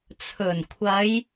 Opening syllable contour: low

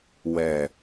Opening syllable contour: low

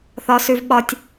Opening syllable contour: high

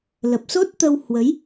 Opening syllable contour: low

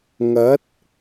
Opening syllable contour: rising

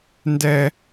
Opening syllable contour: high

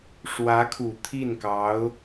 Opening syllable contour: rising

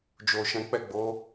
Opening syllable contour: low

